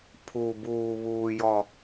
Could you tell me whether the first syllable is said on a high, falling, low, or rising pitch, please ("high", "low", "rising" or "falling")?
low